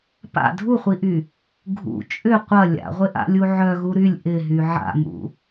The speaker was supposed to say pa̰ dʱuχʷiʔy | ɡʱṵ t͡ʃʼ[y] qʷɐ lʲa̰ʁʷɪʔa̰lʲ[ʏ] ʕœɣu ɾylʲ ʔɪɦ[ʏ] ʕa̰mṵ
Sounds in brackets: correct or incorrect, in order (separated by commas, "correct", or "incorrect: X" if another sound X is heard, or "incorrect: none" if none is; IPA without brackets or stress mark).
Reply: incorrect: ʏ, incorrect: u, incorrect: y